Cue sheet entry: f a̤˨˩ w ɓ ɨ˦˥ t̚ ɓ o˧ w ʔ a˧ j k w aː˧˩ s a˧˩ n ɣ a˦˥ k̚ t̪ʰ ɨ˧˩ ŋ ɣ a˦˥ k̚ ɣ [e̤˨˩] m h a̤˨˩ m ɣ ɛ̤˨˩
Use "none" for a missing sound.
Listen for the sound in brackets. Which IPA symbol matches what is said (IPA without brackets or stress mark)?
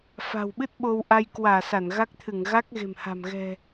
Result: e̤˨˩